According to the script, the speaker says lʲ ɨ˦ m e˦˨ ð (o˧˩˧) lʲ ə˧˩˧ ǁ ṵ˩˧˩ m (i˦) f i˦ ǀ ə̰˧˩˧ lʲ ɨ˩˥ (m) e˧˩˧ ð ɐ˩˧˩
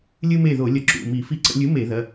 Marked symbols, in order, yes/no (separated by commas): yes, no, yes